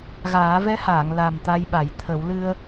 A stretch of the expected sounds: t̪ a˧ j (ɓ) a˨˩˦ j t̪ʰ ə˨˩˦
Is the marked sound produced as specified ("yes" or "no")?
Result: yes